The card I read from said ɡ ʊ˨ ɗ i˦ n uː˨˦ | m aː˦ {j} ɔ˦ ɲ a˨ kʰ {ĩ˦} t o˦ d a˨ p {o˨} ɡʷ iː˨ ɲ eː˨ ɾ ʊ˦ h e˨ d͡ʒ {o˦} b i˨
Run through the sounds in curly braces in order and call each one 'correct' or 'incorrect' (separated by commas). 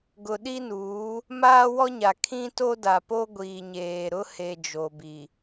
incorrect, correct, incorrect, incorrect